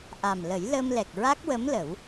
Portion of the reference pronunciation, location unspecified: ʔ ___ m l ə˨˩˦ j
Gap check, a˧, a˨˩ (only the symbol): a˨˩